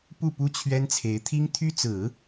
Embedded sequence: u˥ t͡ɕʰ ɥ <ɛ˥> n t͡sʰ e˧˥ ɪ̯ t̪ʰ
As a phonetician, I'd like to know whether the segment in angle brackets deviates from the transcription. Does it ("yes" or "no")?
no